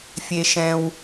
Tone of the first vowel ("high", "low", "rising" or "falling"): low